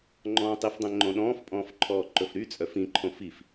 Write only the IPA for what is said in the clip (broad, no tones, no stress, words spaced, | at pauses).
ŋ͡ǃɔ̃ːtˤifdˤɛ̃ ŋ͡ǃõɗɔ̃ːfpʼɔ̃ːf ǃʰɔːǃɵfɾyt͡sʼœf ĩǃʰõ fif